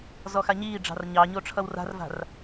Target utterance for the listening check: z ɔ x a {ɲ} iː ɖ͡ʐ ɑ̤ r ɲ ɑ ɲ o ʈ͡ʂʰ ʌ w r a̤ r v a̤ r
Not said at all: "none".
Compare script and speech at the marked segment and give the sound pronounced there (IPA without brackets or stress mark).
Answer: ɲ